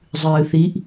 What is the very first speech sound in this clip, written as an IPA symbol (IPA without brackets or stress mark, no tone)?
zˤ